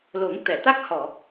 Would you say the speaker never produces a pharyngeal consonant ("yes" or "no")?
yes